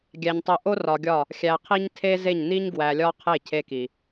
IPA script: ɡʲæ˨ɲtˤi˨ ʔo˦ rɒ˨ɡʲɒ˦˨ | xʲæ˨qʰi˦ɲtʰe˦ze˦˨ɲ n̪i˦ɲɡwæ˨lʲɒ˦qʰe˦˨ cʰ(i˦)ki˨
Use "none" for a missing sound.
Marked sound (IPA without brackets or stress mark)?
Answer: e˦